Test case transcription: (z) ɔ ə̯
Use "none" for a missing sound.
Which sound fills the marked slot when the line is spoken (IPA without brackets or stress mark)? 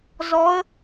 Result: z